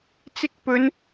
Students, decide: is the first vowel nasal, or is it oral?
oral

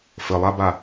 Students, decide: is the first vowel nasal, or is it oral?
oral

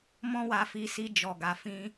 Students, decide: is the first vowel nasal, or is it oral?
nasal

